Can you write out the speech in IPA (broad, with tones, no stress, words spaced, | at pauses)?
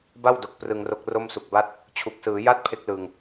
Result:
ba˥˩wdo˨˩k̚ prɯ˧ŋro˦˥k̚ ro˥˩msu˨˩k̚ba˥˩t̚ | t͡ɕʰu˨˩k̚sɯː˩˦ja˥˩t̚ pʰe˦˥k̚lɯ˨˩ŋ